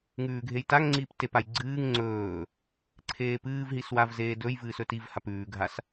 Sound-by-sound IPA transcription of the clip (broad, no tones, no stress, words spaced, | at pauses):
ŋʉːɡʱejtaŋŋ͡ǀiːp tepaj ɡ͡ǀɨːŋ ŋ͡ǀɵː | ǀʰeːpɨːvɦis wavzeːdɵjvɨːs ɵtivhap ʉːɡʱas